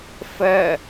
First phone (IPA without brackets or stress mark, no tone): f